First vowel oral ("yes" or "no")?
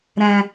no